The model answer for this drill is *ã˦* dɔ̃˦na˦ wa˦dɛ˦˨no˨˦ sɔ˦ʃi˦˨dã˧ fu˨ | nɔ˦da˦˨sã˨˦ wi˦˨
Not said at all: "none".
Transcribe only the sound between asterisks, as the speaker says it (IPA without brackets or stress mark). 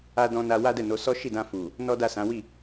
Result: a˦